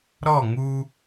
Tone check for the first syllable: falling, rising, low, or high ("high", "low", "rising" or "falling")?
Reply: falling